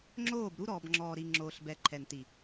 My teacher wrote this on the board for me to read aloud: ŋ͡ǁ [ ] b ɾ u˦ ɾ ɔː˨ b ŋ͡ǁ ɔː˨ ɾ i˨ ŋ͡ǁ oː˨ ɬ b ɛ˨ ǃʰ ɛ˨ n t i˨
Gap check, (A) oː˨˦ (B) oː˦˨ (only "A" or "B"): B